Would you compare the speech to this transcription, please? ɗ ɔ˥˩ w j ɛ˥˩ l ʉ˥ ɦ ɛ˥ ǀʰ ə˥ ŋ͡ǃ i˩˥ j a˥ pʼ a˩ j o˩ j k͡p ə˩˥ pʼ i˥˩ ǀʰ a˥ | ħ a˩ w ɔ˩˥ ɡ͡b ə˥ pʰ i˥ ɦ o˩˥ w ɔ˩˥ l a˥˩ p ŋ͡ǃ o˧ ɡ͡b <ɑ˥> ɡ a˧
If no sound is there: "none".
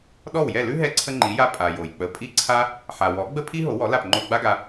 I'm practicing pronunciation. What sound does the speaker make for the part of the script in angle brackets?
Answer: a˥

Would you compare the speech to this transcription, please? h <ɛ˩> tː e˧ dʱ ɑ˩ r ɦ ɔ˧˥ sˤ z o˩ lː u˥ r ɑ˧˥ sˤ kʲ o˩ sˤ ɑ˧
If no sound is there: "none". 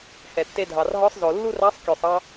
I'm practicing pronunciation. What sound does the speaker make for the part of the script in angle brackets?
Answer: ɛ˩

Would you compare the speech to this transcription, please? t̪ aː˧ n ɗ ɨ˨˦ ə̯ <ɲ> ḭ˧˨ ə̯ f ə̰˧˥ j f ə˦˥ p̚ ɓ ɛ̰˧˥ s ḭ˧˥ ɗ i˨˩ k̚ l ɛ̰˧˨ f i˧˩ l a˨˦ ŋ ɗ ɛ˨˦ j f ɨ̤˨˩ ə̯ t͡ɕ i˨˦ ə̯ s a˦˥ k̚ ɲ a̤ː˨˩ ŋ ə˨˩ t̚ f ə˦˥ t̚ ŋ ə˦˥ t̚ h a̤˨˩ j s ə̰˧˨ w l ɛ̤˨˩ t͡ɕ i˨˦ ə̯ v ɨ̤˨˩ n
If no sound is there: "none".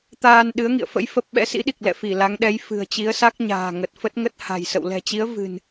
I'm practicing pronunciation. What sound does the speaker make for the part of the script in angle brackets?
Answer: ŋ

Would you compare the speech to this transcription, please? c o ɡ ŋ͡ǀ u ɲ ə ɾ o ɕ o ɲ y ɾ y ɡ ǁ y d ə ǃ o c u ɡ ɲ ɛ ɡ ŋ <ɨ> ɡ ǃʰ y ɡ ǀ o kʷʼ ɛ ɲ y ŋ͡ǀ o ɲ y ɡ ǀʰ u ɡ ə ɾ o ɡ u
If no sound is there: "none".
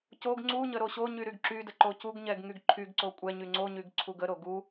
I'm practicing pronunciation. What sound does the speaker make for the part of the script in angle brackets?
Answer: y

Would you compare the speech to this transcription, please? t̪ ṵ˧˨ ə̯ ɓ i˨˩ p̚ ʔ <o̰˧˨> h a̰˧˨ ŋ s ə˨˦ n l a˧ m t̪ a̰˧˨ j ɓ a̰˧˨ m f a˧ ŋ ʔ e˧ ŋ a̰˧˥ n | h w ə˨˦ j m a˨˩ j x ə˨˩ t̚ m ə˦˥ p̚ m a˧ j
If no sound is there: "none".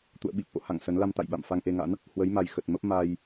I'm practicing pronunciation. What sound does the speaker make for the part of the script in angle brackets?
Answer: o̰˧˨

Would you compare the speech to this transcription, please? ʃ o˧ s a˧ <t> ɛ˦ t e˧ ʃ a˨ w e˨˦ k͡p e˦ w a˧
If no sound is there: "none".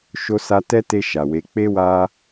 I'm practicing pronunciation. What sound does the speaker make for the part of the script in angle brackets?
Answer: t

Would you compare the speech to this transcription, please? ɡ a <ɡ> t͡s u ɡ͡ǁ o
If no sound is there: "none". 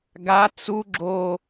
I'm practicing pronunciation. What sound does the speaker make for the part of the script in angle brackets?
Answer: none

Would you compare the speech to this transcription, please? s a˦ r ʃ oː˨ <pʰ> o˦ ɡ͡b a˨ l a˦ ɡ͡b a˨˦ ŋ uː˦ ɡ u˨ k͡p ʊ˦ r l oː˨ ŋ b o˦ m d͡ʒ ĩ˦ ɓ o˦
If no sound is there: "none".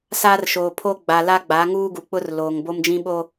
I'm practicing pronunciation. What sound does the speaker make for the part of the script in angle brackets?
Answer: pʰ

